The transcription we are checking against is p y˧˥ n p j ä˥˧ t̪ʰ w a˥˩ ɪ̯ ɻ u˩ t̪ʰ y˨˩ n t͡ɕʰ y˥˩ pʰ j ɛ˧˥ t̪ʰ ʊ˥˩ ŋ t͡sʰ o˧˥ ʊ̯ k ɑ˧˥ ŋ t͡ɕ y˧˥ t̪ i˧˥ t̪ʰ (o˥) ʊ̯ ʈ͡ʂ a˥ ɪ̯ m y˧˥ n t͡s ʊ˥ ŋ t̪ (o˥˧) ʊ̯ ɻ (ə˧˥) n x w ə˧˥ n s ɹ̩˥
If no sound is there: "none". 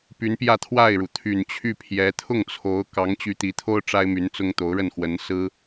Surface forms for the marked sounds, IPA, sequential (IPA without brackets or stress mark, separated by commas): o˥, o˧˥, ə˥˩